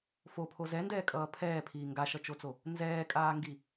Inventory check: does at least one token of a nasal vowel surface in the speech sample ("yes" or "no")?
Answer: no